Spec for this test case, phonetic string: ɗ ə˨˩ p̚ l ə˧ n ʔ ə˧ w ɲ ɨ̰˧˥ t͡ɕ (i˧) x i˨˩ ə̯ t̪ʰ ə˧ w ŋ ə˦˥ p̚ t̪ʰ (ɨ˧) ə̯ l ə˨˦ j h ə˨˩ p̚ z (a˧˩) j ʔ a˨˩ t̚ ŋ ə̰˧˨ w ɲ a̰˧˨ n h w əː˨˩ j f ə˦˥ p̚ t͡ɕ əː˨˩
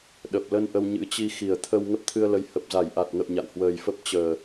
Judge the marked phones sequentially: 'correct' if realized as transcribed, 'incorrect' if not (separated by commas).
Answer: correct, correct, correct